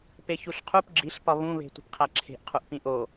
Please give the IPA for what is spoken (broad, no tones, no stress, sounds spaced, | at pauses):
p e ç u ɬ qʰ u p ɡ͡ǁ i ɬ p ɒ β ũ β e̤ tʷ i̤ p qʰ æ ǁʰ e̤ ʔ qʰ u ʔ p ĩ ʔ o